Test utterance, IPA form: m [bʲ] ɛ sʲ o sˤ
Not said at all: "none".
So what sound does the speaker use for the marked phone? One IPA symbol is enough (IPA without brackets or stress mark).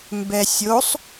b